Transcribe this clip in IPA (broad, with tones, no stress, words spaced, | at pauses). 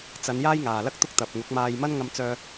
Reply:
t͡sɐ˨˧n jaː˥jŋaː˨lɐ˥k̚t̪ʊ˥k̚ t̪ɐ˨p̚ŋʊ˨˥k̚maː˧j mɐ˥n ŋɐ˧mt͡sœː˧